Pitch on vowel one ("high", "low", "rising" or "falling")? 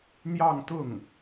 falling